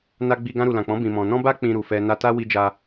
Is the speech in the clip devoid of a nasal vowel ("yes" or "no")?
no